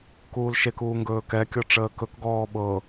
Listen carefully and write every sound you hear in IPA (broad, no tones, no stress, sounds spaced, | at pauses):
k uː l ʃ e k uː ŋ ɡ ɵː k ɛ kʲ ɔ ʈ͡ʂ əː k ɵ k ɡ ɔː ɓ ɤ